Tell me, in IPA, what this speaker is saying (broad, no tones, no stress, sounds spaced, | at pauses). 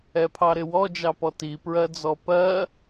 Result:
ɛ pʰ ɑ ɾ ɪ w ɔ d͡ʒ ɑ p ɔ t i p ɹ ɜ d͡z ɔ p ɜ